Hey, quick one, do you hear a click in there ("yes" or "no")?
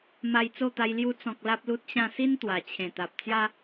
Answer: no